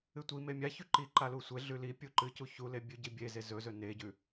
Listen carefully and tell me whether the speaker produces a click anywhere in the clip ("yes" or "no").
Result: yes